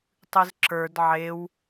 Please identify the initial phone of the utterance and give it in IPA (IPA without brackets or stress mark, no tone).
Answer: tˤ